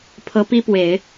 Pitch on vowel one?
rising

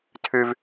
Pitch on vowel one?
low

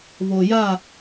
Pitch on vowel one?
low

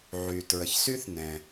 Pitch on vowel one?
low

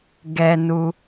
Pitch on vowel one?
low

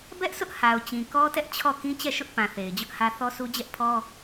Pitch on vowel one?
high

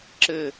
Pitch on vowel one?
falling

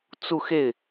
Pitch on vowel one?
falling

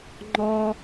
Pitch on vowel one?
high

